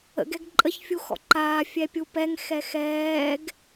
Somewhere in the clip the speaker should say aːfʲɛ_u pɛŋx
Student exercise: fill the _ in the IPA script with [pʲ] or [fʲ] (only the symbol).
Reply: pʲ